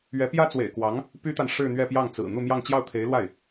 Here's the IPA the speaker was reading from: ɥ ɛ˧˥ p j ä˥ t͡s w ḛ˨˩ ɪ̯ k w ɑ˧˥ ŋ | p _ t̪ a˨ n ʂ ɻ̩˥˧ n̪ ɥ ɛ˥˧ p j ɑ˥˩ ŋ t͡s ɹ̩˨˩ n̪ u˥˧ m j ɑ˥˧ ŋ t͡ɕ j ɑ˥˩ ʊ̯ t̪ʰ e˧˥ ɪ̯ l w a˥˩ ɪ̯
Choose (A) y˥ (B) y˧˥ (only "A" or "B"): A